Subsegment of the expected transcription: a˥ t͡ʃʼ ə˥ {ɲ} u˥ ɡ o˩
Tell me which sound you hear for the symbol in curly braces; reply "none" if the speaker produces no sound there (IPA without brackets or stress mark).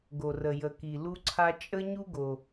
ɲ